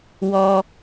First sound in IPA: w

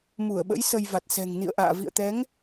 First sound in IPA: m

